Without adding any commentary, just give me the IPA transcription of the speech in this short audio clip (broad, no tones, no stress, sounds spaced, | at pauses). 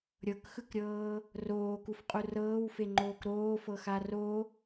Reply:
ɾʲ ɤ k x ɯ k ɾʲ ɤː | r oː k u f qʼ u r ɤː w f e ŋ͡ǃ oː k ɾ oː f ɤ x a r o